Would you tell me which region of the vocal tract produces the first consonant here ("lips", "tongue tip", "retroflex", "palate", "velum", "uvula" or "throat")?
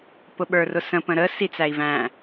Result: lips